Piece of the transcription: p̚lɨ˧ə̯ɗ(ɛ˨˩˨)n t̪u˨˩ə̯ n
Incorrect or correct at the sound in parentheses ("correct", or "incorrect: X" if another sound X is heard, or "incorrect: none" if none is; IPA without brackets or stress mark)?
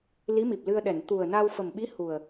correct